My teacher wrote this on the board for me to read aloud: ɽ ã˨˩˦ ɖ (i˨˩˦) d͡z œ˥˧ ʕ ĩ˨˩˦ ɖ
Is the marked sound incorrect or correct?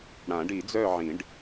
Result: correct